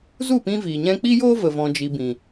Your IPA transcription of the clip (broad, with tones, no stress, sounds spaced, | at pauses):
z u˦˨ p ĩ˧ v iː˨ ɲ ɛ̃˧ k͡p i˦ j oː˦ v ə˨ v ɔ̃˨ d͡ʒ i˨ b ĩ˨